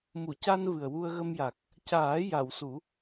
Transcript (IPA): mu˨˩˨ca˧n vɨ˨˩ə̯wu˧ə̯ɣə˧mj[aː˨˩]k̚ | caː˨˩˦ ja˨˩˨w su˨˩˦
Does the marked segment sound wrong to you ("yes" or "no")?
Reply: yes